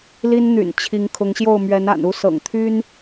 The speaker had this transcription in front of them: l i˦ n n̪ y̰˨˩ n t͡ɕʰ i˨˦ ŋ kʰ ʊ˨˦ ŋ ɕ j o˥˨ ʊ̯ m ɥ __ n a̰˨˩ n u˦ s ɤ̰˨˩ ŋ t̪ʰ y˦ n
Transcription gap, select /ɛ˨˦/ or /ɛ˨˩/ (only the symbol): ɛ˨˦